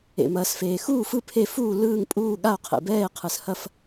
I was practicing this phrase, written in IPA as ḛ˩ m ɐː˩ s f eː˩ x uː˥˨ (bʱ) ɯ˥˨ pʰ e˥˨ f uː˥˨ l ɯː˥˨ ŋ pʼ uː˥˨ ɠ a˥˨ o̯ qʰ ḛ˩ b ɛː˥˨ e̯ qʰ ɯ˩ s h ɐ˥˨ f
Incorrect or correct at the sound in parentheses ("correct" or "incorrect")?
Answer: incorrect